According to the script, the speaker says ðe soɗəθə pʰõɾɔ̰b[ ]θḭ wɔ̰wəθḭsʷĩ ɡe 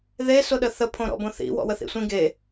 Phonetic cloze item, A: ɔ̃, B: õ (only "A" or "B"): B